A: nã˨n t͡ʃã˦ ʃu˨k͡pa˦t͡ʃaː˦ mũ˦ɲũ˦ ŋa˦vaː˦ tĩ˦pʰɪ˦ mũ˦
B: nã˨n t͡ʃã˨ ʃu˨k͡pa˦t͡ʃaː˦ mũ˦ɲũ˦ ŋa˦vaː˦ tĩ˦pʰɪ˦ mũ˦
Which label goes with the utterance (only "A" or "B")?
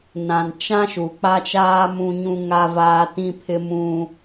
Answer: A